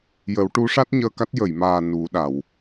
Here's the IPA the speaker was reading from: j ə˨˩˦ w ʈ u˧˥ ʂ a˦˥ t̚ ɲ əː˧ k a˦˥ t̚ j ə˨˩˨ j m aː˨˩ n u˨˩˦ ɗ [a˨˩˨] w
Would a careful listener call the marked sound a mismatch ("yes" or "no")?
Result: no